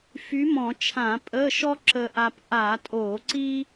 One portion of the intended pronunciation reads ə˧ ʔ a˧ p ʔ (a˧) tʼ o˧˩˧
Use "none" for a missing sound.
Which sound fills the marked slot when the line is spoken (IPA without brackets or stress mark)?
a˧˩˧